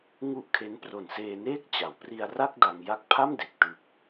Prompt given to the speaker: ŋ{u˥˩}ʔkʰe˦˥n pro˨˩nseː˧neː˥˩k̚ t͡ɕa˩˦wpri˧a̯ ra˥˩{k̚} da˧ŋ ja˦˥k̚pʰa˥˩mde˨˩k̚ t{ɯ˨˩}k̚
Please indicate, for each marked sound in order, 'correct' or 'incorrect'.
correct, correct, correct

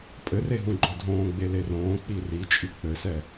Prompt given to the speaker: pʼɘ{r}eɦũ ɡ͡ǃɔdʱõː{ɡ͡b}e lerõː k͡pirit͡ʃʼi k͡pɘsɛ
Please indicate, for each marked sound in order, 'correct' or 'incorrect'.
correct, correct

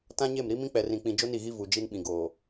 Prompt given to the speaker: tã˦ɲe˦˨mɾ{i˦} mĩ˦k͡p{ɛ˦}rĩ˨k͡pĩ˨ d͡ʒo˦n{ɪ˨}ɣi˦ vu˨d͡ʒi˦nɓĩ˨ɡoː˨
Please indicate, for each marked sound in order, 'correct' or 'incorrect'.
correct, incorrect: ɛ˨, incorrect: i˨

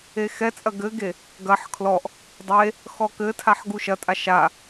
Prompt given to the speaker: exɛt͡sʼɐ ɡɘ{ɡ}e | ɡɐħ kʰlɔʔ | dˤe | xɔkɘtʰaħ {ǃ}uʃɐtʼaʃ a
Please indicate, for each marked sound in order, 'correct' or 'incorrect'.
correct, incorrect: ɡ

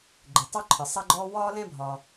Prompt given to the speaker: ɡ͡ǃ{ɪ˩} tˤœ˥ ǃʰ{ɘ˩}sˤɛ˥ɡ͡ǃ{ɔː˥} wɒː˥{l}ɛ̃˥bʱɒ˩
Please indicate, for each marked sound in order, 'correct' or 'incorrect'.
correct, correct, correct, correct

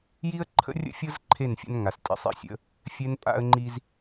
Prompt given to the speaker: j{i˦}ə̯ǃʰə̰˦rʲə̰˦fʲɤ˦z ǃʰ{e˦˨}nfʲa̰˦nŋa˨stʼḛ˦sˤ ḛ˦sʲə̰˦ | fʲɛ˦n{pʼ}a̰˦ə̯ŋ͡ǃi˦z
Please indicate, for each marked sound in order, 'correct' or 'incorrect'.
correct, correct, correct

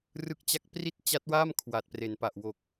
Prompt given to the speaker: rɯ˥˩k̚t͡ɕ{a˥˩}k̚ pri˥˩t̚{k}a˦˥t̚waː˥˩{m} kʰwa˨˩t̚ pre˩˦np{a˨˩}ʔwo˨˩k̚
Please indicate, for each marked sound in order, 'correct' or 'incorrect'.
correct, incorrect: t͡ɕ, correct, correct

